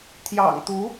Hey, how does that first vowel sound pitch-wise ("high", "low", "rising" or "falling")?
low